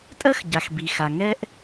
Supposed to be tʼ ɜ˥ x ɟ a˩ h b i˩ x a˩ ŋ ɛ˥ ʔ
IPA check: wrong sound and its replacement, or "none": h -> x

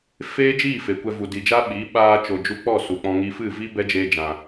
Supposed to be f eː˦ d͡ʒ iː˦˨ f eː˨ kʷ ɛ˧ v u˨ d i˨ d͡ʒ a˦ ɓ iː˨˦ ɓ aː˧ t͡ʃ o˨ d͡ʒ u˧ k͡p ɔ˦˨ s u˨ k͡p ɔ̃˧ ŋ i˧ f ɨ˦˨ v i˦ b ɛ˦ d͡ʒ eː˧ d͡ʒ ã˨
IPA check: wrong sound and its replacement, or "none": none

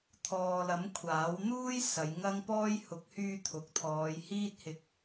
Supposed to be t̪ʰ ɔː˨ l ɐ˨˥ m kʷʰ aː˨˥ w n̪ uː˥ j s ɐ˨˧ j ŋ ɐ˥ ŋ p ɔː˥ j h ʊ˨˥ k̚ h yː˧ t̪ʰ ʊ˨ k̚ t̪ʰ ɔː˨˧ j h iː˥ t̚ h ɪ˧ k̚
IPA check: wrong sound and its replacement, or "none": none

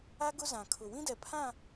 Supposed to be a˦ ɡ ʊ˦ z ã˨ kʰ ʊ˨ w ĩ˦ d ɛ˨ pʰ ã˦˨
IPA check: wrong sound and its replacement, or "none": none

